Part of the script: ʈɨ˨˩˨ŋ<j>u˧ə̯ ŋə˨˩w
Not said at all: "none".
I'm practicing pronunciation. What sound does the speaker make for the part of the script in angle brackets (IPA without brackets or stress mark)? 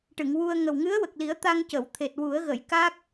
w